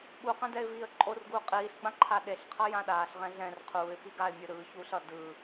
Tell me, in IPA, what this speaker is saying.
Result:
ɓuqɛ̃d ɛɪ̯viːə̯ǃʼorɡuː qʼiːɬɡ͡bã ǃʰaɗeɬqʰʌ jãɗaːɬʁɛ̃ ɮɛ̃r qʰuːɪ̯ piɡaɪ̯mʲɯ ɾɯːçuːɬ ʌ dɯː

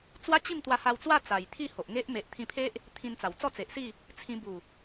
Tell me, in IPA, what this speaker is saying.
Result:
t͡swa˦t͡ɕi˥˧m t̪wa˧ha˧wt͡swa˥˧ t͡sa˨˩jt̪ʰi˥˧ho˨ʔŋe˦ʔ me˨ʔt̪ʰĩ˧pʰe˦ʔ | t̪ʰĩ˧nt͡sa˨˩w t͡sɔ˥˧t͡se˨ʔsi˥˧ | t͡sʰĩ˧ bu˨˩

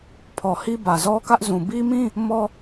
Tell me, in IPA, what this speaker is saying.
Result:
pʰɔ˨hi˦ bä˨zɔ˦kä˦ʔzũ˨ bi˦ mĩ˦ | mɔ˦

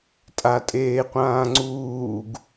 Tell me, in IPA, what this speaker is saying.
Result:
tʼatʼeːqʷãːŋ͡ǀuːɡ

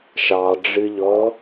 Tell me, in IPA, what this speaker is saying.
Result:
ʃɑɖ͡ʐɨʎɔ

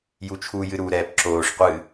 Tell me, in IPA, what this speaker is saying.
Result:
jut͡ʃʰu jɨɾu ɾɛːpǁoːʂ qʷɨ

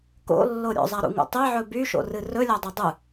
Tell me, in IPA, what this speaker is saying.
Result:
ko̰lːo ɾʲo̰zˤaɾṵŋṵ tˤeʕɵ byʃo̰rɨ rɵlʲadˤo dˤɨ

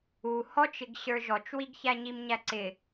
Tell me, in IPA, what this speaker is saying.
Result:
u hɔt͡ʃɪɡ ɕə˞ʒɔt͡ʃwiɡçæ ɲimɲæǀɪ

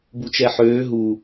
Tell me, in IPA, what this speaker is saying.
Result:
but͡ʃɛħøː ɦu

